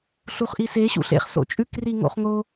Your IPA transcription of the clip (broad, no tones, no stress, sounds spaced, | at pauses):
ɬ u χ ʔ i s e ɕ ṵ ɬ ḛ χ s o̰ t͡ʃʼ ʉ k r i ŋ o̰ χ ŋ o